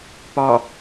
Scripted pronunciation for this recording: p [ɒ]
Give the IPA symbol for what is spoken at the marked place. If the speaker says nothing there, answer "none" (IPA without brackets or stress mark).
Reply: ɒ